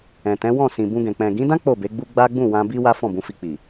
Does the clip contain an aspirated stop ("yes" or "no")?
no